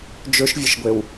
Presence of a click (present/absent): absent